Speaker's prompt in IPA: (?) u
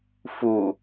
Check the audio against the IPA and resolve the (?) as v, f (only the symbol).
f